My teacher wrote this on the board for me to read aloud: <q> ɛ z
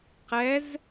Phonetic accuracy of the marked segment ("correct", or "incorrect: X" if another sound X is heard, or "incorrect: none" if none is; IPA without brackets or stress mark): correct